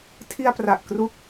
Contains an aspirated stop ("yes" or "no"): yes